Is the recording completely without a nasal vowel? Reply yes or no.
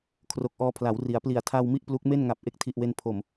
yes